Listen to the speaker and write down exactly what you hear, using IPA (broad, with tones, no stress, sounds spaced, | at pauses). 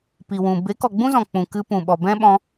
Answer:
p i˨ w ũ˨ b e˨˦ k ɔ˨ ɡ͡b ũ˦ z ɔ̃˨ k͡p ũ˨ k ɨ˧ p ũ˨ ɓ ɔ˨ b ɛ̃˦ ɓ ɔ̃˧